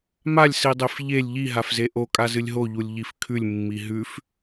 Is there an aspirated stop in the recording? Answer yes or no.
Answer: yes